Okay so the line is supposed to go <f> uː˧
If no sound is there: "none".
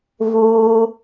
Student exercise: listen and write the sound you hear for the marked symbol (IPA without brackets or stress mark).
v